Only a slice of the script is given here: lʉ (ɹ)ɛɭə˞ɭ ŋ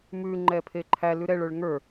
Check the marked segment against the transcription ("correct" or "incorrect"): incorrect